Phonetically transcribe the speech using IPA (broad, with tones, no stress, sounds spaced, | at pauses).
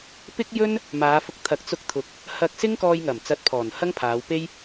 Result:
p ɪ˥ k̚ j ɵ˥ n | m aː˨˧ f ʊ˧ k̚ t̪ʰ ɐ˨˥ k̚ t͡s ʊ˧ k̚ t̪ʰ ʊ˨ k̚ | h ɐ˧ k̚ s ɪ˥ ŋ k ɔː˧ j ŋ ɐ˨˩ m t͡s ɐ˧ t̚ pʰ ɔː˨˩ n h ɐ˥ ŋ pʰ aː˨˧ w p e˥ j